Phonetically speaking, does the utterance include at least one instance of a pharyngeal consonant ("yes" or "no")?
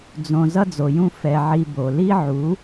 yes